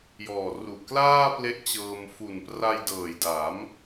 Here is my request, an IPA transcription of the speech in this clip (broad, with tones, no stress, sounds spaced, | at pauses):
j ɔː˨˩ r u˨˩ ʔ k l aː˥˩ p l e˦˥ ʔ t͡ɕ ɤː˧ m f u˨˩ n p r a˧ j d ɤː˨˩ j d a˩˦ m